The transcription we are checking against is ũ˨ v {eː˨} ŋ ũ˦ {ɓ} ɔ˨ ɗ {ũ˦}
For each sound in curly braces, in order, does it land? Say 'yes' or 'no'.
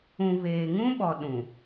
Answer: yes, yes, no

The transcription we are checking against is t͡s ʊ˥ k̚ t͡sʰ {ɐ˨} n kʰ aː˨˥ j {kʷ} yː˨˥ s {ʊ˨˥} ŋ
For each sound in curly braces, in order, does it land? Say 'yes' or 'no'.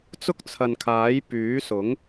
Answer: yes, no, yes

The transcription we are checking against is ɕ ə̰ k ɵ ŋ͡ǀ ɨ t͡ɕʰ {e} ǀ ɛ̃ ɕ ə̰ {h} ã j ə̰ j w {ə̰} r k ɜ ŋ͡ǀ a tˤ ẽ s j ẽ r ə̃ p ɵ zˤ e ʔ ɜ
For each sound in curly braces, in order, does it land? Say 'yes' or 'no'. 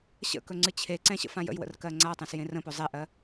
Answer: yes, no, yes

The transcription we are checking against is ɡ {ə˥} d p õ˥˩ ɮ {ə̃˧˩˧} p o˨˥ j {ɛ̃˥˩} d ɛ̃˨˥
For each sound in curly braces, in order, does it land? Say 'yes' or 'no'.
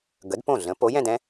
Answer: no, no, no

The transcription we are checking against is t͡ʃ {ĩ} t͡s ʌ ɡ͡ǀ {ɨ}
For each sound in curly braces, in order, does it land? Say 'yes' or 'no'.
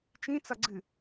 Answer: yes, yes

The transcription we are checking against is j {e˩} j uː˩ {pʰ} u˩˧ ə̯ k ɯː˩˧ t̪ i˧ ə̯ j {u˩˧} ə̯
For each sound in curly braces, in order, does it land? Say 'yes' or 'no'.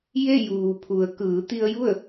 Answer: no, yes, no

